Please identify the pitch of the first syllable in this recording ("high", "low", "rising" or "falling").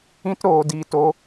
high